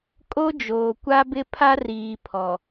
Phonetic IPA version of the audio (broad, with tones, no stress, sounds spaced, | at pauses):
kʼ o˦ d͡ʒ oː˨ kʷ a˦ b ɪ˦ pʰ a˦ r iː˨ pʰ ɔ˨